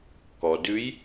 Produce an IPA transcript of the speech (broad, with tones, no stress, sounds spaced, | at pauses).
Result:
k ɔ˩ d ʉ˧˥ j